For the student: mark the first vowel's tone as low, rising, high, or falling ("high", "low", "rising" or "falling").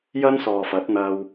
high